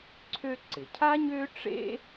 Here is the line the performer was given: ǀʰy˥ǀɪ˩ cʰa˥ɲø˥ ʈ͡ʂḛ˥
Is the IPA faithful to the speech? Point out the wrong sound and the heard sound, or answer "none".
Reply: y˥ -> ø˥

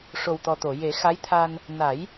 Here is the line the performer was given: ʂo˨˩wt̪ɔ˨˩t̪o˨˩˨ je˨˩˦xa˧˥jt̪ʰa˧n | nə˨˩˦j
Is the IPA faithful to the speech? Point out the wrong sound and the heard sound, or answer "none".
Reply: ə˨˩˦ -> a˨˩˦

